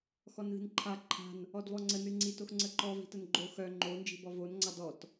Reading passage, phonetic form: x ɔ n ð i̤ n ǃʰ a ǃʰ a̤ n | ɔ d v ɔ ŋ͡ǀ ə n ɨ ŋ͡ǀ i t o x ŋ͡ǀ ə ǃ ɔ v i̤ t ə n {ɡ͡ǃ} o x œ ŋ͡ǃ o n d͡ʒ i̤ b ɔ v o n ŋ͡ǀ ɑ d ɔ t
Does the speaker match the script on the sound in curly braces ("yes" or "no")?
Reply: yes